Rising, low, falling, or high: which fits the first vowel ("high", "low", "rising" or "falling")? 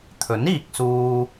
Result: rising